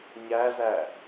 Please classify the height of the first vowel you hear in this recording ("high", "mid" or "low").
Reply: low